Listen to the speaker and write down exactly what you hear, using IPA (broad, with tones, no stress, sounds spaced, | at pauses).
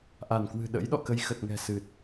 ʔ a˧˩ n k w ɨ̤˨˩ ɗ ə̰˧˥ j ɗ ɔ̰˧˨ k ə˧ j x ə˨˩ t̚ ŋ ɛ̤˨˩ s ɨ˨˩ t̚